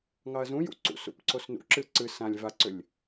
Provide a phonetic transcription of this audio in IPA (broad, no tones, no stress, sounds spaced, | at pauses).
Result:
ŋ ɑ ɐ̯ z ũ j ṵ ǀ ṵ s ṵ p ǀ o s n ṵ ǁ ɨ ǀ ɨ s ã lʲ v a ǀ ʏ lʲ